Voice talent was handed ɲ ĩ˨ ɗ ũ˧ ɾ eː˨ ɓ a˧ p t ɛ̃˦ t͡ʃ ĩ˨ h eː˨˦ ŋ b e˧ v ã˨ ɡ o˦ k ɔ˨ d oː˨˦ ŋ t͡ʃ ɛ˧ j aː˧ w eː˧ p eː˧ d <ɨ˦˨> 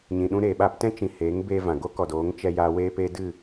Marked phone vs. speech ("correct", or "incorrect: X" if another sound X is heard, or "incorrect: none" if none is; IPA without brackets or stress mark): correct